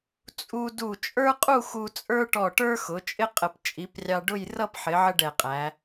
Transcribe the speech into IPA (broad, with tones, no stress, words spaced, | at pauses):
t͡sʼu˧du˧˩ t͡ʃʼə˞˥qʼu˥˧ xu˧t͡sʼə˞˥ʈɔ˧˩ʈə˞˥ xʊ˩˧t͡ʃʼɪ˥qʼə˧˩p t͡ʃʼi˩˧prʲɑ˧ ɖʊ˥˧j rʌ˥˧pħɪ˩˧ ʕə˥ɖɛ˧˩qʼæ˩˧